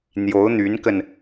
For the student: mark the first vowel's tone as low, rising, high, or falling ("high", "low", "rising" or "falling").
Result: rising